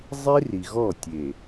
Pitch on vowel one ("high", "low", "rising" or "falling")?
high